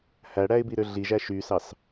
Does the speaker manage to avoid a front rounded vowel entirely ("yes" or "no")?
no